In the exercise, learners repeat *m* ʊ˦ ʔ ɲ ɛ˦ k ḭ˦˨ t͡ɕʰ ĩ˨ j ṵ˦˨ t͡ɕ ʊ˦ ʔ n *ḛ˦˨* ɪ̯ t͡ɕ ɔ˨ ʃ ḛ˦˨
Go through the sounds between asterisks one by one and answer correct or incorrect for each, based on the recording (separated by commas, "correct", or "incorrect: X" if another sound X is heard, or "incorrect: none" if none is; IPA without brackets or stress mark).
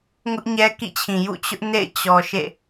incorrect: ŋ, correct